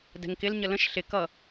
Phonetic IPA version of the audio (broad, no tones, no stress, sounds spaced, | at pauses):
d ɛ̤ ŋ k ɪ l ɲ ə l ə̃ ʃ ɬ ɪ k ʌ